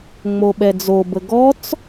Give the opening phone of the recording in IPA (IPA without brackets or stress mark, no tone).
ŋ͡m